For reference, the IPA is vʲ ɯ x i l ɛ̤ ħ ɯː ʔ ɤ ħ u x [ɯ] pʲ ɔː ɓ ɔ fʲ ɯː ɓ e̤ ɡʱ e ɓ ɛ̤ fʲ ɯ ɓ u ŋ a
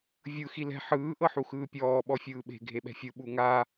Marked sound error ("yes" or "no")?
yes